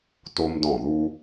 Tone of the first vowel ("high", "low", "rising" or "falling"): high